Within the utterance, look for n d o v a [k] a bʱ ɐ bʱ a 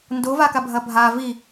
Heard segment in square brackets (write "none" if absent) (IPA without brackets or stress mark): k